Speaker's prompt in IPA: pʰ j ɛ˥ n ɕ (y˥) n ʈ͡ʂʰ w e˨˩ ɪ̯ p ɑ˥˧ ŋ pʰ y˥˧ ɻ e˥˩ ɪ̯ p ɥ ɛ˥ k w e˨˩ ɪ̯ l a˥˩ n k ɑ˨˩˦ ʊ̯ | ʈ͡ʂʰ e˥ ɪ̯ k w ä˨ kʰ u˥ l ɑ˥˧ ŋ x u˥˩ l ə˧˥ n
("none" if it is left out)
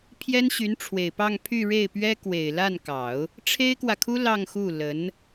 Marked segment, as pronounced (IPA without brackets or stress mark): y˧˥